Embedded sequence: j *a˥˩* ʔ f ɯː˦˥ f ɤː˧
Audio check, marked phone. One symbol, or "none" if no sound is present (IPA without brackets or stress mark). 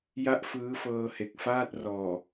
a˥˩